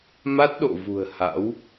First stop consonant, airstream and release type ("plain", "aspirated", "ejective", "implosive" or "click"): plain